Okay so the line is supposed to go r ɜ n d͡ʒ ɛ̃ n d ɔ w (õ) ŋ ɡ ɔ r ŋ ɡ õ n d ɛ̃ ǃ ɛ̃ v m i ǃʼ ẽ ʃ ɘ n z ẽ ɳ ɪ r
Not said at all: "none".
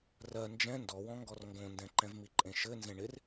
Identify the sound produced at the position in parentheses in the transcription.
ɔ̃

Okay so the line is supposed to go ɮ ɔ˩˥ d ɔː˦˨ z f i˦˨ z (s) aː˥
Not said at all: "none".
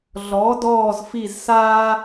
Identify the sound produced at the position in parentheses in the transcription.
s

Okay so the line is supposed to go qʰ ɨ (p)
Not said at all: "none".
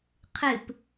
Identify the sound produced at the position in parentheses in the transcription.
p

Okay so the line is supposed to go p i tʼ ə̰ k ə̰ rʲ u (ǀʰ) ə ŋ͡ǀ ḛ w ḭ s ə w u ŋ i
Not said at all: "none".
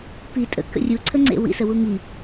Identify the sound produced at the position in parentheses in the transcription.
ǀʰ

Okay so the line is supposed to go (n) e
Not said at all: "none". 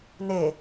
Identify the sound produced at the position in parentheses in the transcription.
n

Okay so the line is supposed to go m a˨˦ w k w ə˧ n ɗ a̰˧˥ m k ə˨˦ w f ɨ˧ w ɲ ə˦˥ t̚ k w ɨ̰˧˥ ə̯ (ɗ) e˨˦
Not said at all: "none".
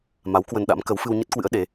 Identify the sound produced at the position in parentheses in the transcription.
ɗ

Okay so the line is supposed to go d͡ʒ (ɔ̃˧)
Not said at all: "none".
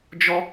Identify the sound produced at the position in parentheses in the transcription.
ɔ˧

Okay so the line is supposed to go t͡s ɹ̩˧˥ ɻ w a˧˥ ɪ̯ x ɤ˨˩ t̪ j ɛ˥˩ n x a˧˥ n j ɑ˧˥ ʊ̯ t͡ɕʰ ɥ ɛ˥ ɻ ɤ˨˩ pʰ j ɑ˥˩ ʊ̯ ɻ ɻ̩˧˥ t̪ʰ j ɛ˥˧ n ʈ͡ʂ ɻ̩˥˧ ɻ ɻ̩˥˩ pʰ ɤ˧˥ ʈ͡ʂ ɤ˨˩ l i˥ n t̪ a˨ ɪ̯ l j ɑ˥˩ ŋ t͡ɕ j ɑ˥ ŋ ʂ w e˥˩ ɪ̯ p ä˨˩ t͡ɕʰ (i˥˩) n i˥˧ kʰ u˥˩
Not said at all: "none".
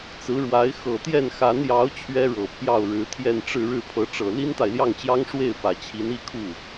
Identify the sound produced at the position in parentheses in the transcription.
i˧˥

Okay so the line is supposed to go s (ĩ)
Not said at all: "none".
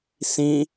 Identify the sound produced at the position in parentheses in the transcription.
ĩ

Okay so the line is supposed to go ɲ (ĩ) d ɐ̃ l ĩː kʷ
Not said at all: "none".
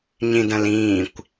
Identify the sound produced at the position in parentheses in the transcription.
ĩ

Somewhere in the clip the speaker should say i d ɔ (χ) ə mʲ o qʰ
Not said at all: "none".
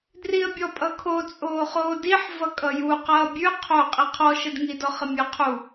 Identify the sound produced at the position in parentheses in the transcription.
χ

